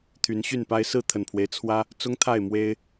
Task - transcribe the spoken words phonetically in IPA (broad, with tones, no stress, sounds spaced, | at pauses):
t̪ʰ y˨˦ n ɕ y˥˨ n p a˦ ɪ̯ s ɹ̩˥˨ t̪ʰ ə˨˩ n pʰ w e˦ ɪ̯ t͡sʰ w ä˦ | t͡s ʊ˦ ŋ t̪ʰ a˥˨ ɪ̯ m w e˦ ɪ̯